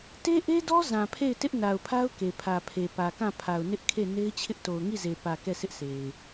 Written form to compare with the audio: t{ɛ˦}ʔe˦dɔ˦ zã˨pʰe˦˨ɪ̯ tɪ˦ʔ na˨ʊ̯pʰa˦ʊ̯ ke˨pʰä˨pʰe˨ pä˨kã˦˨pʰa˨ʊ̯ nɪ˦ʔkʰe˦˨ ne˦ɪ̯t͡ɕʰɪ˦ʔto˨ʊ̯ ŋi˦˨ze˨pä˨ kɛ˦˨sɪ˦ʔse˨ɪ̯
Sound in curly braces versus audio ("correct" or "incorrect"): incorrect